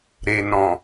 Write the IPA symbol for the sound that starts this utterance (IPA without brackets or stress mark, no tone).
ɾ